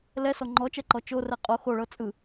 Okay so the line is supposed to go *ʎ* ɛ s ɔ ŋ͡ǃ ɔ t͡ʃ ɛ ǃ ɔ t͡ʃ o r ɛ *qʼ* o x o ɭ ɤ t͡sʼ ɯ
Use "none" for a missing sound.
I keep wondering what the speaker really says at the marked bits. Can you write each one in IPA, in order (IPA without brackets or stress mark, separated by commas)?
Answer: l, qʼ